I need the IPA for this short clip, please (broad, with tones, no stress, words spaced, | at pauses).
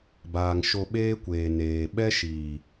baː˨ŋ ʃo˧ ɓeː˦kʷeː˨ neː˨ ɓɛ˦ʃiː˨